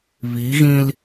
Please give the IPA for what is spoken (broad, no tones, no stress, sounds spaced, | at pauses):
β i ɣ ĩ l